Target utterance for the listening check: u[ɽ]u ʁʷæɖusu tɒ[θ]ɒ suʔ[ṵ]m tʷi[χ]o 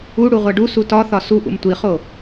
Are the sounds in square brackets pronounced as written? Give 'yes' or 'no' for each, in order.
yes, yes, yes, yes

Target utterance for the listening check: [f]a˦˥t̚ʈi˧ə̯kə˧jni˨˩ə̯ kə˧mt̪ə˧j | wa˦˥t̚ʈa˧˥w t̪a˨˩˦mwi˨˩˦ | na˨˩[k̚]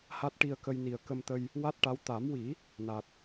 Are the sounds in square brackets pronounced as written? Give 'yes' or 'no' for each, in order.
no, no

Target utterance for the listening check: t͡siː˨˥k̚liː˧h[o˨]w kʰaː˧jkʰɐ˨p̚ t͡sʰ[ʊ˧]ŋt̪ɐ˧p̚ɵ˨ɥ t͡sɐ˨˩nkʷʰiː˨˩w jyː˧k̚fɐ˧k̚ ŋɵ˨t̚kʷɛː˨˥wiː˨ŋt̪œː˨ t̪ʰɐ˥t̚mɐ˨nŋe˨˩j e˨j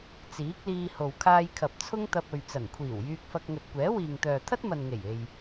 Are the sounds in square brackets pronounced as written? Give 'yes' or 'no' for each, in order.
yes, no

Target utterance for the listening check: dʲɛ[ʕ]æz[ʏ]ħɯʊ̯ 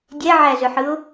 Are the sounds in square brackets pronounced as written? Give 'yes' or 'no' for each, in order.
yes, yes

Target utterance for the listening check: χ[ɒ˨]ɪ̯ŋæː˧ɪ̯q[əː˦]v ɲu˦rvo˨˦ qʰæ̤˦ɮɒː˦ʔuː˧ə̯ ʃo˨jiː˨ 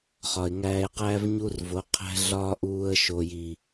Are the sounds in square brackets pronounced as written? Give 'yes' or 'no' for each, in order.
yes, no

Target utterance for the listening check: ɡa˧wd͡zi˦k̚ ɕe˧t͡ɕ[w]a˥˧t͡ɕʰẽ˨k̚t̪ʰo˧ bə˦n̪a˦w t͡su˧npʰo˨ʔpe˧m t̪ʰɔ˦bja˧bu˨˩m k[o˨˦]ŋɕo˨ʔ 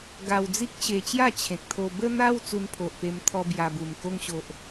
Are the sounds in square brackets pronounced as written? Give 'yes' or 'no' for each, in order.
no, no

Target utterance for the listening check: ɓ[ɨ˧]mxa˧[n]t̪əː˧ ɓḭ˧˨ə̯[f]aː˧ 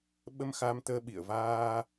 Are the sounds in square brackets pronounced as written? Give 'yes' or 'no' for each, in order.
no, no, no

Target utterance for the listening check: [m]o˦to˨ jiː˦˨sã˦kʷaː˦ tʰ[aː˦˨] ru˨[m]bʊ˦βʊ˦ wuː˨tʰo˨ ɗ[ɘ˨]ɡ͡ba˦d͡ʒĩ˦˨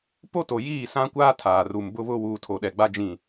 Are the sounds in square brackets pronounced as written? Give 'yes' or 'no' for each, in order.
no, no, yes, no

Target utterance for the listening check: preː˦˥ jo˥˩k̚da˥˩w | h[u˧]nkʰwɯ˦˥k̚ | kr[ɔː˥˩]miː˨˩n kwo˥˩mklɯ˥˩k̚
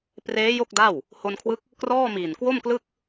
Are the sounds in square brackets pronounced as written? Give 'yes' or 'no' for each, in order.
no, yes

